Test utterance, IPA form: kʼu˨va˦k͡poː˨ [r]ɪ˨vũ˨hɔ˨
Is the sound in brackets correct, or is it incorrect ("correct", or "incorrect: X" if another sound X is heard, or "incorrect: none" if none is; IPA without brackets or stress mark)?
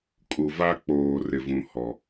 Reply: correct